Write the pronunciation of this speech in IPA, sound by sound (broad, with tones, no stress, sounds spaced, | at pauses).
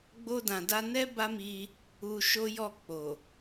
ɡ͡b o˧ d ã˨ d a˧ n ɛ˦ b a˦ m i˧ | u˧ ʃ o˦ j ɔ˦˨ k͡p o˨